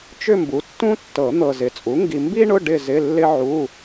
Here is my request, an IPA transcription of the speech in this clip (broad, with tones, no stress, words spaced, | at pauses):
t͡ʃʏ˥˧mbu˩˥tːũ˥tːɤ˨˩˦ n̪ɤ˨zɪ˩˥t͡sʼu˩˥ ŋɡi˨mbi˥ɳʊ˧˥˧ ɖɪ˥˧zɪ˧˥˧ lːɪ˥ʕu˧˥˧